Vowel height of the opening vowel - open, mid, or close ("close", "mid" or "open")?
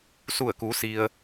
close